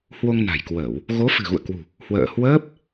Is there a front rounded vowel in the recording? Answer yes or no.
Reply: no